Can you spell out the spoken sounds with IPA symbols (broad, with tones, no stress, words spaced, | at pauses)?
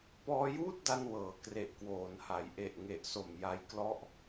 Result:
pɔː˧juː˥˩t̚da˧n wɤː˩˦kre˨˩ʔkwoː˩˦nha˩˦j ʔe˨˩ʔŋe˨˩ʔ so˨˩m ja˧jklɔ˦˥ʔ